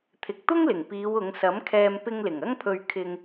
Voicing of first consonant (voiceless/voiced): voiceless